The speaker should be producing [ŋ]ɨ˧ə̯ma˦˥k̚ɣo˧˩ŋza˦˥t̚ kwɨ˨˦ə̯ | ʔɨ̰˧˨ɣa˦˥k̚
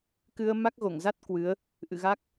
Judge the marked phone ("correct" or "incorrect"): incorrect